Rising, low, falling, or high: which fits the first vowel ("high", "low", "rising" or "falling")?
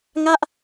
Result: falling